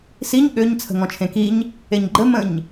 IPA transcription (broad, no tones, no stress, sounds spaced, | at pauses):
s i ɲ ɠ ø ɲ t͡sʰ ə̤ ŋ ɔ̃ t͡ʃʰ ẽ k i ɲ | e ɲ ɡ͡ǃ ə m ə̃ ɲ